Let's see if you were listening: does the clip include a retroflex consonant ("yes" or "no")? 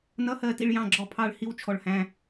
yes